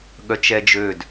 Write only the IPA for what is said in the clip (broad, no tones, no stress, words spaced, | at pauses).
ɠœt͡ʃɛd͡ʒød